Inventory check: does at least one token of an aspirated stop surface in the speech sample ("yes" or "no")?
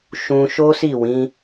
no